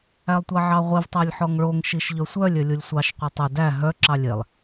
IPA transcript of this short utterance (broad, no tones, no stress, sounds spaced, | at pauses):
æ lˠ tʷ ɑ ʕ ɑ ʁʷ i v tˤ æ lʲ ħ ɔ ŋ ɭ o ŋ ʃ i ʃ ʎ œ sʷ œ lʲ œ lʲ o lʲ sʷ ɑ ʃ qʷ i tˤ ɵ d æ ɦ œ ǁ ɑ lʲ e lˠ